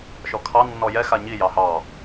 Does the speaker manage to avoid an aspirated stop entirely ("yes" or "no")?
no